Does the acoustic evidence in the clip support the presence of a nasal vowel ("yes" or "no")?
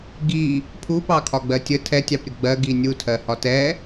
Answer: no